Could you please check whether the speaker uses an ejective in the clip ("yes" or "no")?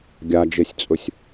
yes